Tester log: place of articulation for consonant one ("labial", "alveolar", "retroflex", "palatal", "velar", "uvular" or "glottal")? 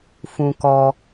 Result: labial